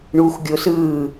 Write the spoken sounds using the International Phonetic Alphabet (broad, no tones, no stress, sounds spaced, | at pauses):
ɳ uː x ɡʲ o s ɯː